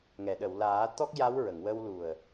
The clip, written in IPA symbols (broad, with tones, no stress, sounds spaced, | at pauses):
ŋ ɛ˨˩˨ ɗ ə˨˩˨ w l aː˨˩˦ t̪ ɔ˦˥ k̚ j a˧˥ w ɹ ə˨˩˨ ŋ w ə˧ w l u˨˩ ə̯